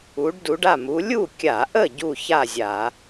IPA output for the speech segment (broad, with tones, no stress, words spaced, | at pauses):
u˨˦ɖdu˨˦ɖa˥˨ mu˨˦ lʲu˥˨kʲa˧˩˧ʔə˥˨ ɟu˥˨ça˥˨zʲa˧˩˧